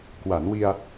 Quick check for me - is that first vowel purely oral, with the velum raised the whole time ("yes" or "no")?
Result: yes